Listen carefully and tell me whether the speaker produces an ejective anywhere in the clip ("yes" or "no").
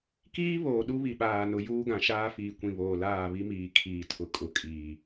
yes